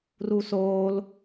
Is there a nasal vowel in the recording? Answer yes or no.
no